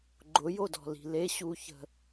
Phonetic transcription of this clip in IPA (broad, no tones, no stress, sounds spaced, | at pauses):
ɡ͡ǃ ʊ j o d ɔ̤ l i̤ l e ɕ u ç ə̤